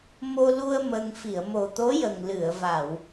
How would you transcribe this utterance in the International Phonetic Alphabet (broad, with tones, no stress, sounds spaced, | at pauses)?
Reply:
m o˧ l u˧ ə̯ m ə˧ ŋ f i˨˩˨ ə̯ m o˨˩ t̪ o˧˥ j ə˨˩ ŋ l ɨ˨˩˨ ə̯ v a˨˩˨ w